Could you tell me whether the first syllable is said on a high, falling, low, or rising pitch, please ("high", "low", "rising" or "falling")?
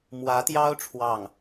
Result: rising